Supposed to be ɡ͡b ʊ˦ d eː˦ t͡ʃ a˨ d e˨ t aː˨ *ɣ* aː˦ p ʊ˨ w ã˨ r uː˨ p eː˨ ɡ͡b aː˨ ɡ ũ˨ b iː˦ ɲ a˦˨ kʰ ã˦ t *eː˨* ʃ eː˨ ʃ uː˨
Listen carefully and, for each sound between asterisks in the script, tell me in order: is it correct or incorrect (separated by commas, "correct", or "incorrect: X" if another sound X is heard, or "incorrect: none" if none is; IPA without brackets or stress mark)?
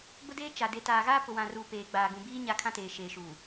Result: correct, correct